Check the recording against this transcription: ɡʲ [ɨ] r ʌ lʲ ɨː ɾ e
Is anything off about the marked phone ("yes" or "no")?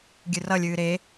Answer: no